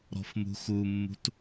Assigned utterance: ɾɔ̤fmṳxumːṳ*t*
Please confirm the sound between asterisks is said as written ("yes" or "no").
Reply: yes